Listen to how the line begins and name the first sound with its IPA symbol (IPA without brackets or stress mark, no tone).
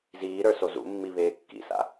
z